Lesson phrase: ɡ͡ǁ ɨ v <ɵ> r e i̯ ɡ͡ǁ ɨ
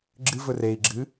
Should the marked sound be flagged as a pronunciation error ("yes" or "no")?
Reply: no